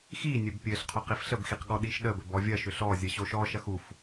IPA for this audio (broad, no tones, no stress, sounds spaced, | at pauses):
x i nʲ ɘ b pʲ ɘ ɬ qʰ o q i f ɬ ə b x i q ɠ ɔ ɗ i ʃ ɗ ə b ɘ b ɔ vʲ ɐ ʃ ʏ ɬ ɔ zʲ ə ɕ o ʃ ɔ ʃ ɐ x u f